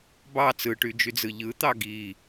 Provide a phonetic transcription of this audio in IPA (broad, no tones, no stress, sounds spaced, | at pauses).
b ɑ t͡s ɯ ʈ y d͡ʒ y d͡z ɯ ʎ ɯ t̪ ɑ ɡ i